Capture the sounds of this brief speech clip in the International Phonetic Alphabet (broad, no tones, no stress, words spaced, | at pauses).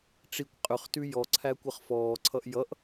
ʈ͡ʂikʷ qʼʏχtʉ jɔǀʰækʷʌχ fɔːǀʰʌʔ jʌʔ